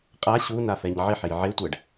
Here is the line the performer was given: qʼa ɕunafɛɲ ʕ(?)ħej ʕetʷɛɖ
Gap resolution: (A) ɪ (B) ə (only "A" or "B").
A